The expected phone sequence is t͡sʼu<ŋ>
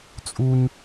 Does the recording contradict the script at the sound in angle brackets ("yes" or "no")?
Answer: yes